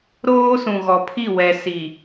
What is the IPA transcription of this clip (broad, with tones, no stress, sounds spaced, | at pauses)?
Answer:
ɾ oː˦ s ũ˨ ɣ ɔ˨ pʰ i˦˨ w ɛ˨ s i˨